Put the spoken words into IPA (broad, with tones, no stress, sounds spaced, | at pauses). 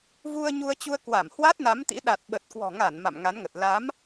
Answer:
v u˧ ə̯ ɲ u˧ ə̯ t͡ɕ u˧ ə̯ k w a˧˩ m h w a˦˥ t̚ n a˨˦ m t̪ ḭ˧˥ ɗ a˨˩ t̚ ɓ ə˨˩ t̚ k w ɔ̤˨˩ ŋ a˧˩ n m a̰˧˨ m ŋ a˨˦ n ŋ ə˨˩ t̚ l a˨˦ m